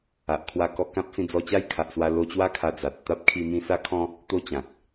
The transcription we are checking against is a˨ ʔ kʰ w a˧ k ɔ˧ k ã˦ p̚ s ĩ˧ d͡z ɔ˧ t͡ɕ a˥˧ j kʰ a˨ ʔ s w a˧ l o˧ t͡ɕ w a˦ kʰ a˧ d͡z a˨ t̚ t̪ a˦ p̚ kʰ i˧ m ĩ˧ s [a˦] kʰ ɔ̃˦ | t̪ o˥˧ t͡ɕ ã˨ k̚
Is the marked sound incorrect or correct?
correct